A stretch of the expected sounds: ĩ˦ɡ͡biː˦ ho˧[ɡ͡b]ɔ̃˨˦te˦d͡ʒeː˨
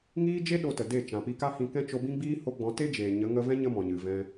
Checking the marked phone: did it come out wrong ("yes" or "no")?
no